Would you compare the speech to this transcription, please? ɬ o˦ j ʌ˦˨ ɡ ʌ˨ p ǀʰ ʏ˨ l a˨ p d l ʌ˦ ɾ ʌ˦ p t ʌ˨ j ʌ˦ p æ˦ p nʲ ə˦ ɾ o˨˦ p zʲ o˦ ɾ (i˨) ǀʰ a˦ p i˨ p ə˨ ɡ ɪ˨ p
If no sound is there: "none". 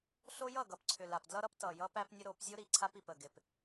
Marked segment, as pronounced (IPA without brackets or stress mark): i˨